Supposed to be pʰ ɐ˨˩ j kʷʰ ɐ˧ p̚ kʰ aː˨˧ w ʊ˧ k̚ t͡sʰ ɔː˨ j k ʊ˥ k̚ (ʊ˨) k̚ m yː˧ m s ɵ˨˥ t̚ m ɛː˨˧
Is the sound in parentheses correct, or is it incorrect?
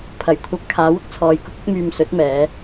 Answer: incorrect